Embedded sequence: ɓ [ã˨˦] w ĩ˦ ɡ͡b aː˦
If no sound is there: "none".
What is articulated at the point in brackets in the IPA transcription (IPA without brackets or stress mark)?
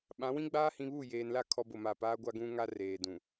ã˨˦